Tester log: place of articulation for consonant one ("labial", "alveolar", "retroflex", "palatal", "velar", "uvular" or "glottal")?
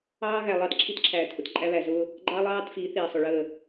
velar